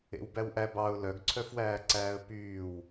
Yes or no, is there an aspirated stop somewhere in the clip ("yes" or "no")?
yes